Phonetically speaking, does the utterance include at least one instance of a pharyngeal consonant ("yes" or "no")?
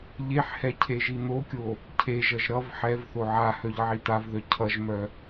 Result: yes